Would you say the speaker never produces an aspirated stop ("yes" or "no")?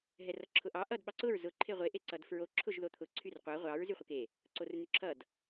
no